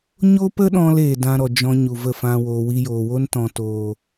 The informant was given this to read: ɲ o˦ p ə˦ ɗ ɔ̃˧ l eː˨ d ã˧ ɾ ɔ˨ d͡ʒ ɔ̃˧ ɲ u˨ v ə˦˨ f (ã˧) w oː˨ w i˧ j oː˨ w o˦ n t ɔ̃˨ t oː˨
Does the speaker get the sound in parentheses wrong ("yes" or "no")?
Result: no